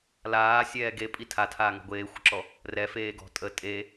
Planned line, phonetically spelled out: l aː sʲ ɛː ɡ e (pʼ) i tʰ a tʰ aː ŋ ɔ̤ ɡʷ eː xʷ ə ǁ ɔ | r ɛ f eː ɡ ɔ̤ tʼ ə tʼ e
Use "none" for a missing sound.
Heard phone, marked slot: pʼ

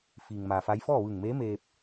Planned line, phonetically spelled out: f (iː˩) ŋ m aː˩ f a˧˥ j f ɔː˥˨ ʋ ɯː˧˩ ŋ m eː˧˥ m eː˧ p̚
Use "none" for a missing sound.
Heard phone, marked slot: iː˩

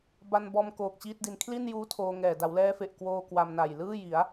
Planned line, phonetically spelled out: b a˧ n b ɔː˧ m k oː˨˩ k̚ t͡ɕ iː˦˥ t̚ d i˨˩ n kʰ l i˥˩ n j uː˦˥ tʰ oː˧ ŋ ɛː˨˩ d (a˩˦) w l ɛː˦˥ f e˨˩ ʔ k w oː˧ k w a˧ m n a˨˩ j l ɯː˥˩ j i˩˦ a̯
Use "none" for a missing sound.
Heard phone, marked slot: a˩˦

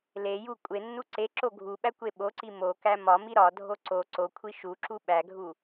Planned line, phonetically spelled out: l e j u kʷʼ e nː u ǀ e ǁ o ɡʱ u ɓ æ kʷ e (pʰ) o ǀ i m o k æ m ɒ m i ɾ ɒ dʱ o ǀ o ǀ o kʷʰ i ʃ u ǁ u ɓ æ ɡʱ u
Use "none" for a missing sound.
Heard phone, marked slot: ɓ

